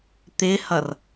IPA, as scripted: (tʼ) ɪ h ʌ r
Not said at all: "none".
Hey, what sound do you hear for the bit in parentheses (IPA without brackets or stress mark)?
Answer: t̪